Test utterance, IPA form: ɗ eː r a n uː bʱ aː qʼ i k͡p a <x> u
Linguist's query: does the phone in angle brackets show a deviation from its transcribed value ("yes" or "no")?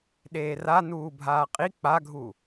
yes